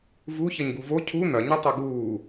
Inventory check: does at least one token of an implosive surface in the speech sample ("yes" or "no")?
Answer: no